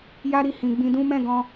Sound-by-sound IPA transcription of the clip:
ja˦ɾi˦˨hĩ˨ ɡ͡bĩ˧dũ˦ mɛ̃˦˨ɡɔ̃˧

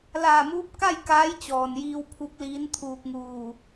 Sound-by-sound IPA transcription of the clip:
laː˧˩muː˧˥p̚ ka˥˨j kaː˧˥jt͡ɕɔː˩njiː˧w pʰu˧˥k̚liː˧˥nt̪ʰuː˧k̚ŋuː˧˩

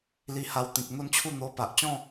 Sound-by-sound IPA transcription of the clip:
li˧ha˧wt̪ĩ˨k̚ n̪o˥˧nt͡ɕʰu˥˧ n̪o˧ pa˨ʔ t͡ɕɔ̃˥˧

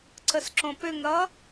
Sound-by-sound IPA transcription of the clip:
ǀəsǁõpʏŋɾʌ

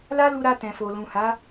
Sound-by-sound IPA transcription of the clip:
la˦lu˧ɾa˧ tɛ̃˨fo˨ lũ˨ ha˨˦

